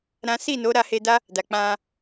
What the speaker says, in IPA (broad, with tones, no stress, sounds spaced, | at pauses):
ɾ ã˦ s i˦˨ n o˨˦ ɾ a˧ h e˧ d a˦ | d a˨ k͡p ã˧